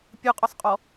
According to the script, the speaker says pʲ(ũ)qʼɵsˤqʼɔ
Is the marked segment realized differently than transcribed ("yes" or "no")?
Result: yes